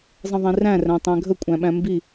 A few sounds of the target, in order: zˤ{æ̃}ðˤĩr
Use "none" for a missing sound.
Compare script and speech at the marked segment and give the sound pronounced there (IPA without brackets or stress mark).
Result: ə̃